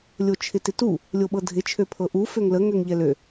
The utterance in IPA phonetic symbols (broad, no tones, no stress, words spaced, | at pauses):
lʲot͡ʃʰɪtɪtu | lʲoɓɤdʱɪ t͡ʃʰøpʰɤʔu føŋlə ŋøŋʎɛlø